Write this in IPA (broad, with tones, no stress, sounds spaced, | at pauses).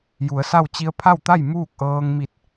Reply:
j u˩˧ ə̯ s a˥˨ w t͡ɕ i˧ ə̯ pʰ a˥˨ w t̪ a˥˨ j m uː˥˨ k̚ ʔ ɤː˧ ŋ m i˧˩ t̚